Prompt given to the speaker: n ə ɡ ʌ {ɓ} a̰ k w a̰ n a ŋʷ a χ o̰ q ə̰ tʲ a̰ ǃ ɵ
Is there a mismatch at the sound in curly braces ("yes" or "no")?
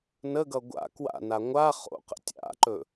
yes